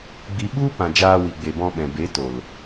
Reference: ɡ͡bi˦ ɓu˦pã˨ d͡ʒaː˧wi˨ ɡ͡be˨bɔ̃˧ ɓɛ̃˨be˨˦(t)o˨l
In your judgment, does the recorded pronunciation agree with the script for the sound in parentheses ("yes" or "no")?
yes